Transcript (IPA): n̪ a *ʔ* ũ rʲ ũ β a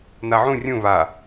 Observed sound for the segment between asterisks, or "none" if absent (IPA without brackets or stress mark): ʕ